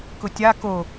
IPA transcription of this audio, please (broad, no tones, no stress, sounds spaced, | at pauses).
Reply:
k ʊ tʲ a k o